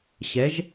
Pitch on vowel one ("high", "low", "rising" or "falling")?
rising